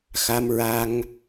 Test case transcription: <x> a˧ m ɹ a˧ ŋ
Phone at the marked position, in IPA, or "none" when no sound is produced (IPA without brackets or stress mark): x